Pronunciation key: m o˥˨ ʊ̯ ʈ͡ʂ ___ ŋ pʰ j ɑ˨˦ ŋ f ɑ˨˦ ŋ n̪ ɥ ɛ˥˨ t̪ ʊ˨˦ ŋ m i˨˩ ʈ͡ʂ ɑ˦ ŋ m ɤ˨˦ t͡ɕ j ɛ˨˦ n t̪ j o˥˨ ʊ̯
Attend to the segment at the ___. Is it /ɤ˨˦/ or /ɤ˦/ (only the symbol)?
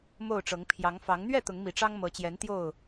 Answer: ɤ˨˦